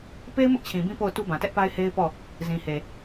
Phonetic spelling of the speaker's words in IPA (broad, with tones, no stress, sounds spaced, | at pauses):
p e˦ ɪ̯ m ʊ˦ ʔ t͡ɕʰ ĩ˨ b ĩ˦ p o˦˨ ʊ̯ t u˦ b ã˨ t ɛ˦ ʔ p a˦ ɪ̯ h e˦ ɪ̯ p ɔ˦˨ | z ĩ˨ h e˨